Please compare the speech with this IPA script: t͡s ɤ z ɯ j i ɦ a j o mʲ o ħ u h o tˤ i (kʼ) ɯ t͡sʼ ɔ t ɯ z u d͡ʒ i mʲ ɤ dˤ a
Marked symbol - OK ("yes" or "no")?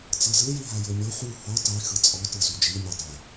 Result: no